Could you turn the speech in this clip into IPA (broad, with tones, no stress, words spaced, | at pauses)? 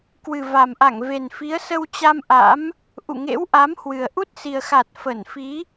kwɨ˨˩va˨˩mʔa˧˩ŋ ve˨˩nfi˨˦ə̯sə˧wt͡ɕa˧m ʔa̰˧˥m | ʔṵ˧˨ŋḛ˧˥wʔa˨˦mhwɨ˨˩ə̯ ʔu˦˥t̚si˨˩ə̯xa˨˩t̚ fə˧˩nfi˨˦